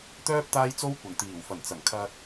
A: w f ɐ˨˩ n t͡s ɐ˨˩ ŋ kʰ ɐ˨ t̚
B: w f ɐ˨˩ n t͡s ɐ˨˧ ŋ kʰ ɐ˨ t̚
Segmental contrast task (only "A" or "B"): A